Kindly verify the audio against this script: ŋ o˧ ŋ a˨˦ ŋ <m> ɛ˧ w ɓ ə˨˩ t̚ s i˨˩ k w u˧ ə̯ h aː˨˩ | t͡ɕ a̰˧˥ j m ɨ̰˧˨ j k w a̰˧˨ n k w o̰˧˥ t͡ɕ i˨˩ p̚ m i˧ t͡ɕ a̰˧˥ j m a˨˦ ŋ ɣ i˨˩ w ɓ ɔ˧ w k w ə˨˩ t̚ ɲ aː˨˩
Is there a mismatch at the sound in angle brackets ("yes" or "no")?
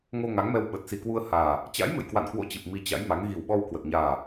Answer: no